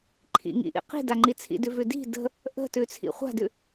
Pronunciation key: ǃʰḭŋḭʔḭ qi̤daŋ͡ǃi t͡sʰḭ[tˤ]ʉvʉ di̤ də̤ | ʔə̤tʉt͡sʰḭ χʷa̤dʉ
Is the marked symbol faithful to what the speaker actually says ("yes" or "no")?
no